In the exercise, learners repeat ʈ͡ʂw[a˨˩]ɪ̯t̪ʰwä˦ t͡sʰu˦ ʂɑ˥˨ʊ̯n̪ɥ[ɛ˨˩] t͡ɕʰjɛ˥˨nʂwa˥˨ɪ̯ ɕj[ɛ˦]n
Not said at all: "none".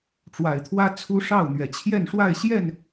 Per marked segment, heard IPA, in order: a˨˩, ɛ˨˩, ɛ˥˨

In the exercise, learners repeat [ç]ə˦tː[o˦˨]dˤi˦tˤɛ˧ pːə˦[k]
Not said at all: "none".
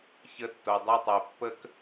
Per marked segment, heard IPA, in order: ç, o˧, k

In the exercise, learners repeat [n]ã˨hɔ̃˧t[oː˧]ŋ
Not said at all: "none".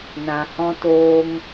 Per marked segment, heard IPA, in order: n, oː˧

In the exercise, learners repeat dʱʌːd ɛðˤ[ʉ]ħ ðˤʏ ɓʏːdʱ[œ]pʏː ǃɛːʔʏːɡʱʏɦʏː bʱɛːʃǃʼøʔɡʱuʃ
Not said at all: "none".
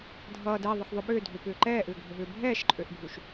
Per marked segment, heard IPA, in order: ə, ø

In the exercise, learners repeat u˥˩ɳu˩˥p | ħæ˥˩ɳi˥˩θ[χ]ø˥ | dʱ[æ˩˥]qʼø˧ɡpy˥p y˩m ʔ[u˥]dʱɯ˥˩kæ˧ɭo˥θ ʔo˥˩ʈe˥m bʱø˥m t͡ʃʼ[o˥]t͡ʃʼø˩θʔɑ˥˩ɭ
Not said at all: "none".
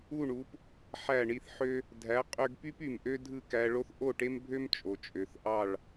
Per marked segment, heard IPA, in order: ħ, æ˩˥, ø˥, o˩

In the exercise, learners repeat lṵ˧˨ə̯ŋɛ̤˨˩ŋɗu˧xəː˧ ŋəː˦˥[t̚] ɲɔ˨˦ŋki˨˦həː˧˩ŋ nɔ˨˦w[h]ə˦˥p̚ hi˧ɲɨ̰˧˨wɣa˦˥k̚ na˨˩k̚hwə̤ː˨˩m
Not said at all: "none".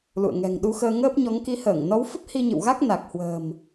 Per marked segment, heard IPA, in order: p̚, f

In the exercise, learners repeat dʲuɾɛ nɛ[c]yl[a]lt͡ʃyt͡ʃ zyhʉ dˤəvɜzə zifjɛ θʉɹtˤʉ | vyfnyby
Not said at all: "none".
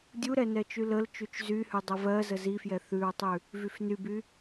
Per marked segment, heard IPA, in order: t͡ʃ, ə

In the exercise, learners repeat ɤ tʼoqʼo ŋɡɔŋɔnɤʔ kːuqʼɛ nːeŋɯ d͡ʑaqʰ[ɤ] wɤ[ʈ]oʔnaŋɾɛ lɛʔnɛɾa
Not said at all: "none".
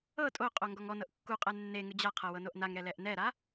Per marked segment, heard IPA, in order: ɤ, n

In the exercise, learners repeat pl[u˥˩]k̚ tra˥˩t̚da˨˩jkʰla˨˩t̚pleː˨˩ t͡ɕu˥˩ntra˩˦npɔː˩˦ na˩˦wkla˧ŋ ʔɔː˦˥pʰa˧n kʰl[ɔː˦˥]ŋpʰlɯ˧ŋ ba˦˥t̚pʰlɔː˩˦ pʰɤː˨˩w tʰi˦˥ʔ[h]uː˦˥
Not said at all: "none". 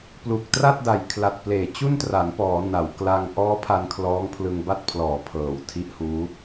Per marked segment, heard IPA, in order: u˨˩, ɔː˦˥, h

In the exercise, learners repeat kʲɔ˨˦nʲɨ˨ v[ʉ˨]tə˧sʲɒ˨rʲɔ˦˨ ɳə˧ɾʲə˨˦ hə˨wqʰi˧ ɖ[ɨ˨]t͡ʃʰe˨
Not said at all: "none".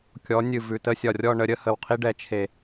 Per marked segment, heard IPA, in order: ʉ˨, ɛ˨

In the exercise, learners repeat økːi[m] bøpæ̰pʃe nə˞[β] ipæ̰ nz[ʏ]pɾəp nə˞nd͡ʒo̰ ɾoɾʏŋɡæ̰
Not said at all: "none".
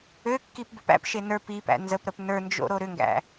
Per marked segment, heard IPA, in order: p, p, ə

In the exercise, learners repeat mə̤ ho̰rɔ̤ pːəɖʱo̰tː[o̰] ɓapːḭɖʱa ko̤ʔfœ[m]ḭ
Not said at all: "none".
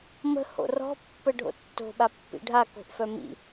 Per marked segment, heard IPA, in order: o̤, m

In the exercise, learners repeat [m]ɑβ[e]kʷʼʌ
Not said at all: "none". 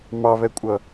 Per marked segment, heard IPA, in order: m, ɛ

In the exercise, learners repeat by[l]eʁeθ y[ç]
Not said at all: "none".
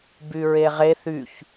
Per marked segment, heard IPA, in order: ɹ, ç

